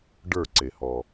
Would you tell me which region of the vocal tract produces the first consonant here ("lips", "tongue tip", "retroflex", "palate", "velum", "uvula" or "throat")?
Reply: retroflex